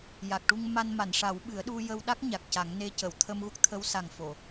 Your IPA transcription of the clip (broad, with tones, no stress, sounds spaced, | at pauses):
j a˨˩ k̚ ʈ u˧ ŋ m a˧ n m a˨˩˨ n ʂ a˨˩˦ w ɓ ɨ˨˩˦ ə̯ ɗ u˧ j ə˧ w ɗ a˦˥ k̚ ɲ a˨˩ k̚ c a˨˩˦ ŋ n e˧ c ə˨˩˨ w t̪ʰ ə˧ m ɣ u˦˥ k̚ t̪ʰ ə˧˥ w s a˨˩ ŋ f o˨˩˨